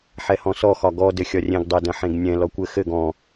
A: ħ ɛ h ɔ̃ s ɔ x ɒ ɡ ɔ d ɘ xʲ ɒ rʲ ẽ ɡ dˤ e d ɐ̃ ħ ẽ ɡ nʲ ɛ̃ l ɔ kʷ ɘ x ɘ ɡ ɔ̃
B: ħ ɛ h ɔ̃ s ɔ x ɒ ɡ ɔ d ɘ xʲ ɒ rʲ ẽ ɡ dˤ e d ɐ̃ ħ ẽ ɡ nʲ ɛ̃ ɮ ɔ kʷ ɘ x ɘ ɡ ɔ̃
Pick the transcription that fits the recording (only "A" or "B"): A